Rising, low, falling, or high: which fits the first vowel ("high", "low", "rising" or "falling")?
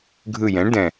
low